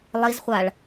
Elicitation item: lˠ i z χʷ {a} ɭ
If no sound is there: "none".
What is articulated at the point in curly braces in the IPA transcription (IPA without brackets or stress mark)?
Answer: a